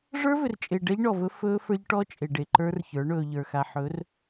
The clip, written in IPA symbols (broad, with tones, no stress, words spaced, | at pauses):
ʐə˞˦vʏ˨rt͡ʃʼe˨ ɖɛ˦ʎɳɔ˨vɵ˦ fɵː˦fə˞˦ʎʈɔ˦ t͡ʃʼe˨ɖe˨ǃə˞˦rçə˞˨˦ ɳɵː˨ʎə˞˨xa˨ ħɵː˨˦r